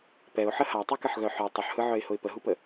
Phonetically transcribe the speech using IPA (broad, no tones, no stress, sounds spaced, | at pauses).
p ɛ ʊ̯ ħ ə h a tˤ u k ə ħ ɣ œ ħ œ tˤ ʊ ħ h ɯ ʕ œ ɪ̯ h ʊ ɪ̯ p ə ɦ u p ə